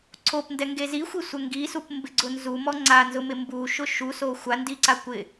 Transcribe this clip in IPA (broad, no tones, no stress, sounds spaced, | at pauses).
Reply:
ǀʰ o p n d ɛ ŋ ɡ e z i xʷ i sʷ ɛ ŋ ɡ i s u p m b ɪ ɡ͡ǀ ʊ n z u m ɔ ŋ͡ǀ a n z ʊ m ɪ m b u ʃ ʊ ʃ u s o xʷ a n d i ǀ a kʷ ɪ